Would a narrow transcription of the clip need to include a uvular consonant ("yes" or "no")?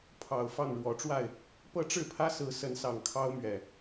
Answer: no